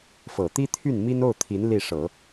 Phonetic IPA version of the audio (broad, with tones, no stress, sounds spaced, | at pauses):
f ɤ˨˩ t̪ i˥ t̪ʰ y˥˩ n m i˥ n o˥˩ ʊ̯ t̪ʰ i˧˥ n l i˥˩ ʂ ɤ˨˩˦